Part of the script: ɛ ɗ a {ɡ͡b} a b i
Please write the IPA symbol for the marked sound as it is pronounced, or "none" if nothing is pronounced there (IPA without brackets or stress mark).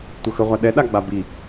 ɡ͡b